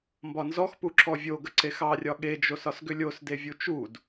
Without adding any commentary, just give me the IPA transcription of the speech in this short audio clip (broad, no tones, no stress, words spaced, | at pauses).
mbɒnzɔxpu ǁɔvʲoɡə ǀexɑrʲɒ ɠed͡ʒosɒs ɡʏlʲosdevʲu t͡ʃud